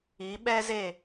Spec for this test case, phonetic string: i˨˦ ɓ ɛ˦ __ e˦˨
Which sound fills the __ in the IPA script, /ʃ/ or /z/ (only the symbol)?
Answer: z